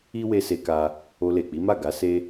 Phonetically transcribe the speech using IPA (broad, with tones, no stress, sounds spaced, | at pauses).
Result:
i˦ w e˧ s e˧ k a˦ | o˧ l e˨ k͡p i˨˦ m a˦˨ ɡ a˨˦ s e˦